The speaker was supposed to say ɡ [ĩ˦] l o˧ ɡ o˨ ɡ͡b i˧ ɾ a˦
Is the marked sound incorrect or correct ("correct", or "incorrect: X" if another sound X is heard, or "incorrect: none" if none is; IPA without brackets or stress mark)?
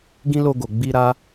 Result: correct